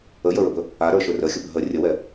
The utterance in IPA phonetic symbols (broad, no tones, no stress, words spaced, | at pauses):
əjəɹəbɵ | aɾə˞ʃɵ rəxʲəbə ɦə rʲəwɛ